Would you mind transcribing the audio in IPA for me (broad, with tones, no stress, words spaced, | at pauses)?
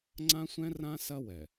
ŋ͡ǀã˦sʷɛ̃˦rã˦ sɐ˦wɛ˨